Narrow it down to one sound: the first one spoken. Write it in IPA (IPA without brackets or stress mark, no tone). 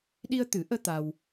ɗ